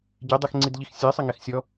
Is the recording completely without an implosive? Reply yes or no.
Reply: yes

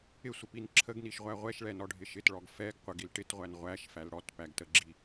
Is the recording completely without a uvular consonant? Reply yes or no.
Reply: no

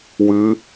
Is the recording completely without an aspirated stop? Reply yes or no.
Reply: yes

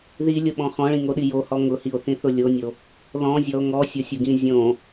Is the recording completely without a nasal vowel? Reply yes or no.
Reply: no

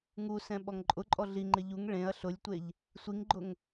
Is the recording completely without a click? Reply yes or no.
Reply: no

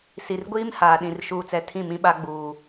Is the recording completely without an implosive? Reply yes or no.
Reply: no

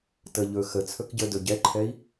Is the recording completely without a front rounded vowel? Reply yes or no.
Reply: yes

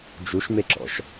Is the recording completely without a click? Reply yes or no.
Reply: no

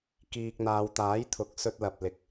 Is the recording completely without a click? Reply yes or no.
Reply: yes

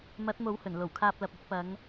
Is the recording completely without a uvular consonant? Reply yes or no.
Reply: yes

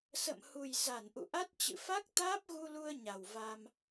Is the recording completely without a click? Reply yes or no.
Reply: yes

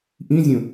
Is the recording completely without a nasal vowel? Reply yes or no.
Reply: no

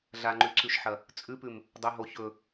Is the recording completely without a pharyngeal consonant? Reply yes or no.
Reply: no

